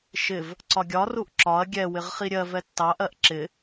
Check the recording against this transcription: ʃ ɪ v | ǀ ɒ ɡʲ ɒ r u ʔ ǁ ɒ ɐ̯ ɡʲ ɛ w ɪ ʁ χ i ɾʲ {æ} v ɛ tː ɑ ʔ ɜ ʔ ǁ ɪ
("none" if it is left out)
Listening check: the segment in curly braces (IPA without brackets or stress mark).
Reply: ɜ